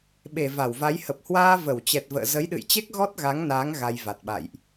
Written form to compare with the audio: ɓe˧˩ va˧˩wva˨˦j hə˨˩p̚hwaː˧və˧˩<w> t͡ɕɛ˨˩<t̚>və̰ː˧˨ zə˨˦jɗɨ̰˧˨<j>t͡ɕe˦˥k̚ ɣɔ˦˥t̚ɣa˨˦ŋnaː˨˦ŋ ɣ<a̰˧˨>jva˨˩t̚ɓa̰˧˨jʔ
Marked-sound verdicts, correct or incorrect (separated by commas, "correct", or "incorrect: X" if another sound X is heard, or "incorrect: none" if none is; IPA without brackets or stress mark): correct, correct, correct, incorrect: a˧